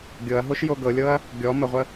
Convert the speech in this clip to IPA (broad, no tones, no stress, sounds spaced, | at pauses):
ɡʲ ɤ ɐ̯ ɦ o ʃ j o ɡ ɤ lʲ ɤ ɐ̯ | ɡʲ ɔ m ə ʁʷ ə